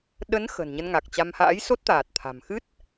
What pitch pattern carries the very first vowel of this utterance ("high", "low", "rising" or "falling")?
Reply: rising